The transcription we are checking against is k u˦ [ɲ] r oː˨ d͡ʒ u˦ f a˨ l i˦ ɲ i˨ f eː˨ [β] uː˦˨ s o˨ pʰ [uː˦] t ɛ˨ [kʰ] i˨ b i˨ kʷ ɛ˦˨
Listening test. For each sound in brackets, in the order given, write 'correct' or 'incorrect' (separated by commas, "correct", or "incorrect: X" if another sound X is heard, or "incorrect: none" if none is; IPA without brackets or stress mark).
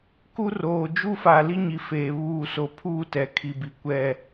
incorrect: none, correct, correct, correct